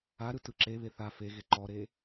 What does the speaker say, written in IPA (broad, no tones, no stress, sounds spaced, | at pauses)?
a ɾ ɯ t ɯ ǁ e β e θ a f e ɣ e ǃ ɔ ɾ e